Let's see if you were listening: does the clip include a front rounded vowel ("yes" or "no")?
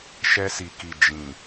no